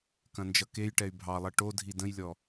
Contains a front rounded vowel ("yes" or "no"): yes